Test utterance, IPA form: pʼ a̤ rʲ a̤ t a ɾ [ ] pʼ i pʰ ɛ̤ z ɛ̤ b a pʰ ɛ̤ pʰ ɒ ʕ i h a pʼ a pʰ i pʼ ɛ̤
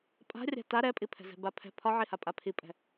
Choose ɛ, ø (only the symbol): ɛ